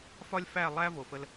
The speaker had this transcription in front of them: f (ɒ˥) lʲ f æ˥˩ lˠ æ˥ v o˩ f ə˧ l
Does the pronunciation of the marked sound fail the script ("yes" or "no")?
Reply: no